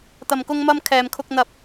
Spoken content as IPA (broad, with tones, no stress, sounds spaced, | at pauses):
t̪ ɐ˨ m k ʊ˧ ŋ m ɐ˧ m kʰ ɛː˨ m kʰ ʊ˧ k̚ n̪ ɐ˧ p̚